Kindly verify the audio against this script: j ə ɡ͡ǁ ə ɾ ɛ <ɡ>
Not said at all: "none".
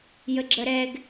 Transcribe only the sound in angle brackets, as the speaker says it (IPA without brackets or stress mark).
ɡ